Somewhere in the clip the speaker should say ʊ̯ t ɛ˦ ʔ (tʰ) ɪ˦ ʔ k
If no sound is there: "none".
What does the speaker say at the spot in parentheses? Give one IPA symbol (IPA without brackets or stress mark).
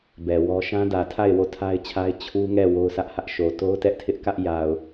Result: tʰ